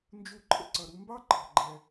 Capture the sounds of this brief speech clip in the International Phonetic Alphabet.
n d͡ʒ u˧ ǃʰ ə̰˥ ǀ ʌ˩ ɾ u˧ m b ɑ˥ ǃʰ ɑ̤˩ ɡ͡ǃ ɛ˩

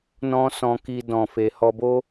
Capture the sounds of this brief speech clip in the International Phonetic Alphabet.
n ɔ̃˦ s ɔ̃˧ k i˧ d ɔ̃˨ f e˨ h ɔ˧ b o˦

